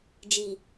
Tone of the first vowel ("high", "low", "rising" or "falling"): low